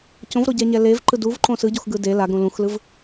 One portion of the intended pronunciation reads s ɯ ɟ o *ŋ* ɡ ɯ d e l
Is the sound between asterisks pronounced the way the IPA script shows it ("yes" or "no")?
no